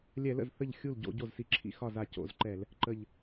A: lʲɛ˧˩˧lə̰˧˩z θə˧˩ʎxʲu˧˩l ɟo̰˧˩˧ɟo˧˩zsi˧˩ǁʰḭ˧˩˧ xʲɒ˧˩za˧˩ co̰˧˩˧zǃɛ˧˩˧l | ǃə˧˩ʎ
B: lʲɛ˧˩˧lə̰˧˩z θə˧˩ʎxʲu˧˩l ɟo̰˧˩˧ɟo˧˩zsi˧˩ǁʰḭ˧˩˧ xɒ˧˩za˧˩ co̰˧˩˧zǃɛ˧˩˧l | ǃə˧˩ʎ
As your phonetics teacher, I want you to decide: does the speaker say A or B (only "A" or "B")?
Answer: B